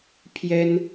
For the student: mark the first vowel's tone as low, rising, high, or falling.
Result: high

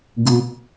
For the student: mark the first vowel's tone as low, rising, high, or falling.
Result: high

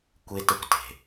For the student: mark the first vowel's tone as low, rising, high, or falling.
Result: high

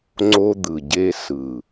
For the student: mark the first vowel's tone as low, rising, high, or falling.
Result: high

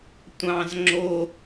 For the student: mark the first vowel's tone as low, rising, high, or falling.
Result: high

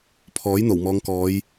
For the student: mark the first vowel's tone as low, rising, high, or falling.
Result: rising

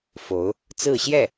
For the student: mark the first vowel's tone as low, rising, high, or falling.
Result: rising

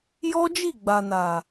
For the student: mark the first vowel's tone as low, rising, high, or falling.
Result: high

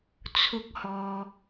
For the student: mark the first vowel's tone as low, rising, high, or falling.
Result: high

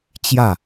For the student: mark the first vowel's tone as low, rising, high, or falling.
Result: falling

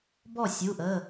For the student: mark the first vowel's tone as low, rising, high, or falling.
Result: falling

